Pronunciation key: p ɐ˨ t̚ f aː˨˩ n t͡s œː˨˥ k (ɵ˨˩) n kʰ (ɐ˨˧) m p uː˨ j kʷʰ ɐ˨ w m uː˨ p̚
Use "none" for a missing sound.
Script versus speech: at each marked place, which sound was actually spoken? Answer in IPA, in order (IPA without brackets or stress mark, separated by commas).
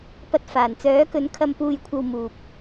ɵ˨˥, ɐ˨